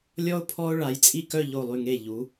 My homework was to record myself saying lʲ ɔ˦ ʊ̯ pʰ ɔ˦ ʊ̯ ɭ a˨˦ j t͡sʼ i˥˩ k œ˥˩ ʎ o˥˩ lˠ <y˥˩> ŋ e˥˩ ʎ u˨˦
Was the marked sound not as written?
no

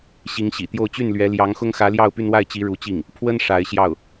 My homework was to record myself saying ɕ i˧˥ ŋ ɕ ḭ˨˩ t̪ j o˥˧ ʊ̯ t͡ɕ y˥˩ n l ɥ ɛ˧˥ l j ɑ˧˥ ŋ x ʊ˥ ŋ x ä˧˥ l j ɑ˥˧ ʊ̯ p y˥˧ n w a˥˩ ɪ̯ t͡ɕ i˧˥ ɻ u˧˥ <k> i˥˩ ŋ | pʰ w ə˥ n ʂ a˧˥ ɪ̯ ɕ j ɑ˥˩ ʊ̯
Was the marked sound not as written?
yes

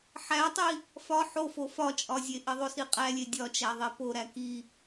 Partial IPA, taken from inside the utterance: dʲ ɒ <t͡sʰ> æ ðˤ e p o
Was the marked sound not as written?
yes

